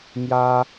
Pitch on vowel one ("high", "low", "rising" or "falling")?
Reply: high